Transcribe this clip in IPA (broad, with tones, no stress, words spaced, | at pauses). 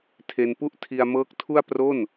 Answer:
tʰe˧npu˥˩ʔ tʰi˧a̯mɤː˦˥k̚ tʰu˥˩a̯ pro˥˩n